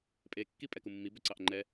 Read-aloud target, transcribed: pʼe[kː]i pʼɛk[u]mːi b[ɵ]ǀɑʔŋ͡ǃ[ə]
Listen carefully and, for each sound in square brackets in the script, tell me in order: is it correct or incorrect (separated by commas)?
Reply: correct, correct, correct, incorrect